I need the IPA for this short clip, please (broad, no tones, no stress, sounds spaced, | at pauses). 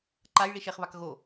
ǃ a j ɭ i ʃ e χ β a k ɣ o